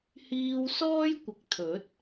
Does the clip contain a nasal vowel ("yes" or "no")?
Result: no